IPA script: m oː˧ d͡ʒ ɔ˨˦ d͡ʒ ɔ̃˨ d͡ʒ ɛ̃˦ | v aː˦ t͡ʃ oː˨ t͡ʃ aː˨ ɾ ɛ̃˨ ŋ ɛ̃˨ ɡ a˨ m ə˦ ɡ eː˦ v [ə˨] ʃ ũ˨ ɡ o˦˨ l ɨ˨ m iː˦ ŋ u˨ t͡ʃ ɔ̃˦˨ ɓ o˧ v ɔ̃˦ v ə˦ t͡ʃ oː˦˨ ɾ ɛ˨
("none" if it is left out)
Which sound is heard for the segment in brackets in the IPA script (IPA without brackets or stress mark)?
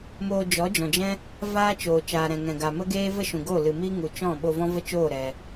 ə˦